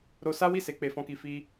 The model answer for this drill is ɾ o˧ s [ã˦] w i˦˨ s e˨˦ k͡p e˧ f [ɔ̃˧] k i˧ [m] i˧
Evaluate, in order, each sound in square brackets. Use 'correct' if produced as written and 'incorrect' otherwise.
incorrect: a˦, incorrect: ɔ̃˦, incorrect: f

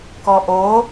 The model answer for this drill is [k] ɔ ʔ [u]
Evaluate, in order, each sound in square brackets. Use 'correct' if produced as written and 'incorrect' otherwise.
correct, incorrect: o

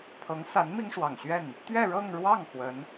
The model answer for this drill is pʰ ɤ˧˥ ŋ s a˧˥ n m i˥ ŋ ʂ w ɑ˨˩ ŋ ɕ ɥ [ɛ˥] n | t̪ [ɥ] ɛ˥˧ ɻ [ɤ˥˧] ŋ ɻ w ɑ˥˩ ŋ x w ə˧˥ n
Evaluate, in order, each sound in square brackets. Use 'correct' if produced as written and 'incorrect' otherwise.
incorrect: ɛ˥˩, correct, correct

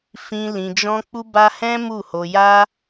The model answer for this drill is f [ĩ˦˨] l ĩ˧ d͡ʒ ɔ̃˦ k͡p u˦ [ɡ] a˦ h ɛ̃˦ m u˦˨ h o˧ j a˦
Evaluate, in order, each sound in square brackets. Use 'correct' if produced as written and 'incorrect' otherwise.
incorrect: ĩ˧, incorrect: b

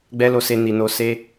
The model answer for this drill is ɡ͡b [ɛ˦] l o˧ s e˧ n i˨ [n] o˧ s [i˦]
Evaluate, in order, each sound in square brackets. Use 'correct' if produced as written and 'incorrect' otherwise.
correct, correct, incorrect: e˦

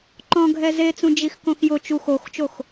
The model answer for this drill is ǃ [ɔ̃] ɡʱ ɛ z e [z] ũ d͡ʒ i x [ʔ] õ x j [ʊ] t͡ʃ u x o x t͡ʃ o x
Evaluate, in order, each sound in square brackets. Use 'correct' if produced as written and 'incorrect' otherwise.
correct, incorrect: t͡s, incorrect: k, correct

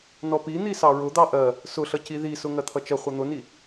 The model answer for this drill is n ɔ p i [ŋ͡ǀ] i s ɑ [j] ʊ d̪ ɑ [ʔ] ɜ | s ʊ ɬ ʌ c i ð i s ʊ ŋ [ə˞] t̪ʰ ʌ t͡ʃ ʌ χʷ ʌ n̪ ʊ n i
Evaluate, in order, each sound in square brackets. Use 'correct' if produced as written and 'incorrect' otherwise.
incorrect: n̪, incorrect: ɹ, correct, incorrect: ɜ

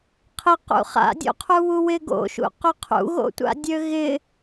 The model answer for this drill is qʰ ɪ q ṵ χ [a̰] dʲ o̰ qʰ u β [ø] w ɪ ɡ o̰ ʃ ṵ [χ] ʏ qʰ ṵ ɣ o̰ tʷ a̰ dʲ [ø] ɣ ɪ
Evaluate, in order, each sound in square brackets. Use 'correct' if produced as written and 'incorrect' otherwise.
correct, incorrect: u, incorrect: q, correct

